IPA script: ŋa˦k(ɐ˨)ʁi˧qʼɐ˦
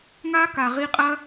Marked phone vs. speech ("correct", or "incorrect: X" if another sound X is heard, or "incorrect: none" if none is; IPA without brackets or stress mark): incorrect: a˨